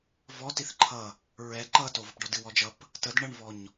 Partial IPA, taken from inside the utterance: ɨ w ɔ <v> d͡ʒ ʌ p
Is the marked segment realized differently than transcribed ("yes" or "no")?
yes